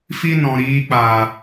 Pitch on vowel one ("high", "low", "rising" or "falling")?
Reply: high